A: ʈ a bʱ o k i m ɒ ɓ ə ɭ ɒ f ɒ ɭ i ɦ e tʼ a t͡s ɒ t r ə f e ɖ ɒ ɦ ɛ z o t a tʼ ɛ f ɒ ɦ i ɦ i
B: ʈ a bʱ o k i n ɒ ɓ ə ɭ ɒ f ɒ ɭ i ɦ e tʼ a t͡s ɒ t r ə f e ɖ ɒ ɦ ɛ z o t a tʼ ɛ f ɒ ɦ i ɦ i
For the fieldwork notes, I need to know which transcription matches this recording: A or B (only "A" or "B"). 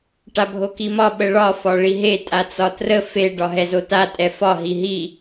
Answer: A